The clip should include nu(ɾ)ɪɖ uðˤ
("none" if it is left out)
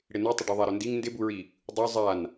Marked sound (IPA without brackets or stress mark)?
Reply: tˤ